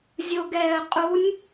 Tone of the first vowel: low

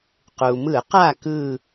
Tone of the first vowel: low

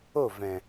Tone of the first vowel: falling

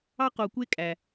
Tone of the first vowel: high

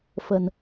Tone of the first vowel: low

